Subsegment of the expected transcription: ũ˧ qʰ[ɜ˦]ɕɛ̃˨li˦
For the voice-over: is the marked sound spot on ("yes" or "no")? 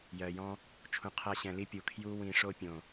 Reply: no